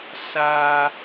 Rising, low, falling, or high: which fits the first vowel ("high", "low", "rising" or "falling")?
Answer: high